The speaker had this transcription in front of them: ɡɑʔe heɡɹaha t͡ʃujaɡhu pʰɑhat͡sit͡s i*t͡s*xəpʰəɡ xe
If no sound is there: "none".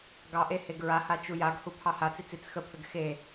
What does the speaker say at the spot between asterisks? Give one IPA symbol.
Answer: t͡s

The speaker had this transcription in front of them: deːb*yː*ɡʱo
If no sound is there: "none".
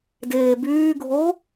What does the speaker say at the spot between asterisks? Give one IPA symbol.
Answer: yː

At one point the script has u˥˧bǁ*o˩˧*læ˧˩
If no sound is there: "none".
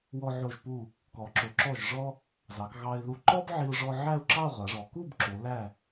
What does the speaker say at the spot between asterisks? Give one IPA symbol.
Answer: o˩˧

